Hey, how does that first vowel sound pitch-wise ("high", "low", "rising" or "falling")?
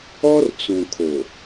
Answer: high